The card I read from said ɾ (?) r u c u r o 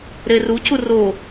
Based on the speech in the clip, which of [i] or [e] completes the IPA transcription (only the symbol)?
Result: e